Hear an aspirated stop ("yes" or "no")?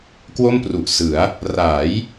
no